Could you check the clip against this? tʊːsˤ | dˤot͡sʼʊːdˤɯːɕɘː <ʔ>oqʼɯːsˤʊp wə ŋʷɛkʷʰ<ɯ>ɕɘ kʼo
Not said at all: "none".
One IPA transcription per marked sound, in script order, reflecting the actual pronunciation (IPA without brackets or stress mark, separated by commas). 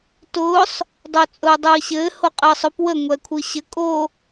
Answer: h, ɯ